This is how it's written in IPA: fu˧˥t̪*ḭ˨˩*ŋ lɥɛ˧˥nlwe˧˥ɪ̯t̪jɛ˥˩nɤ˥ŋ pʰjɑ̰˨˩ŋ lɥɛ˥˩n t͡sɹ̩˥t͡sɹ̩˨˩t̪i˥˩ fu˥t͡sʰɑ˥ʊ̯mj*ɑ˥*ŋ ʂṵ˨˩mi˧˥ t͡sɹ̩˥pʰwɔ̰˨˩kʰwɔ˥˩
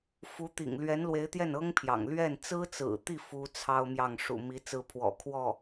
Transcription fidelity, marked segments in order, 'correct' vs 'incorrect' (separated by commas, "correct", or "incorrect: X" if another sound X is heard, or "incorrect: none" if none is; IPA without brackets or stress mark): correct, incorrect: ɑ˥˩